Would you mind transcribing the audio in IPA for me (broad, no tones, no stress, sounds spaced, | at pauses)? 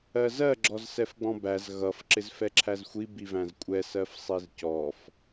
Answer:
ɜ z ɜ ɡ͡ǁ ɔ z s ɛ f ɡ͡b ɔ̃ b æ z ɣ ʌ f ǁ ɪ z f ɛ ǁʰ æ z xʷ i b i v æ̃ z kʷʼ ɛ s ɜ f sˤ i z c ɔ f